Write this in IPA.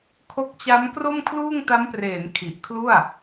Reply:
kʰ o˦˥ k̚ t͡ɕ a˦˥ m k r o˥˩ m kʰ l uː˥˩ ŋ t a˦˥ m p r eː˩˦ n kʰ i˨˩ ʔ kʰ l u˥˩ a̯

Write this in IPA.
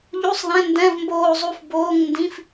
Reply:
ʎ u˧˥˧ sˤ ð ɛ̃˧˥˧ n d ɛ̃˧˥˧ v m b oː˥˧ zˤ u˥˧ f b oː˧˥˧ ŋ n d ĩ˧˥˧ f

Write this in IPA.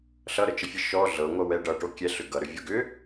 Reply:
ɬ ʌ ɾ ə t͡ʃ ə fʲ ə ʃ ɔ ɮ ɤ ŋʷ ʌ w ɛ ɖ ʌ ʈ o kʲ ɛ ɬ ʏ ɡ ʌ ɾ ʏ vʲ o ɡ ʏ

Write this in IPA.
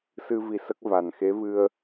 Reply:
s ɨ˧ v i˧ s ə˦˥ k̚ v a˨˩ n x e˧˥ v ɨ˧ ə̯

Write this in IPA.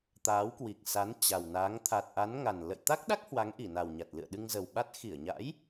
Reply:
t̪ aː˨˦ w k w i˨˩ k̚ s a˨˦ n t͡ɕ a˨˩ w n aː˨˦ ŋ t̪ʰ a˨˩ t̚ ʔ a˨˦ n ŋ a˨˩ n l ə̰˧˨ j t̪ a˦˥ k̚ ɗ a˦˥ k̚ h w a˨˦ ŋ ʔ i˧˩ n a˨˩ w ɲ a˨˩ t̚ l ɨ̰˧˨ ə̯ ɗ ɨ˧ ŋ z ə˨˩ w ɓ a˦˥ t̚ x i˧˩ ə̯ ɲ a̰˧˥ j

